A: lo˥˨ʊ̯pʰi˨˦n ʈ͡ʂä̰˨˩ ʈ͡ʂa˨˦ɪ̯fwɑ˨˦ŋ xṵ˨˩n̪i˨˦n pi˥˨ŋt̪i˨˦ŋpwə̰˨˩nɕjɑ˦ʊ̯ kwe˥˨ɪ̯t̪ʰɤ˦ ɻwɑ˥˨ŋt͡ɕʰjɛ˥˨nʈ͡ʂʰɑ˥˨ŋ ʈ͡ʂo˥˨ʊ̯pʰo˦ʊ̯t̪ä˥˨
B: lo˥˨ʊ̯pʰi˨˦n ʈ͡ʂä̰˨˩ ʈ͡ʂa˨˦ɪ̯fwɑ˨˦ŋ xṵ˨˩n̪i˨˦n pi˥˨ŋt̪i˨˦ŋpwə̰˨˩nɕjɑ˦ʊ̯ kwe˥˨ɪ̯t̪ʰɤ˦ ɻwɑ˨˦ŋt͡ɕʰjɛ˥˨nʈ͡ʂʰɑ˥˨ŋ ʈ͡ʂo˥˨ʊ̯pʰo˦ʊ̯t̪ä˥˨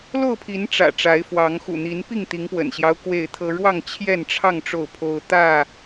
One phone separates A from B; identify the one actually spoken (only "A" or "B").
A